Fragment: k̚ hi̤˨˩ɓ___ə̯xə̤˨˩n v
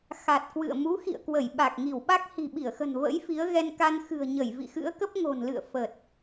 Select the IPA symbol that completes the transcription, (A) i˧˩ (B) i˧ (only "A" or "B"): A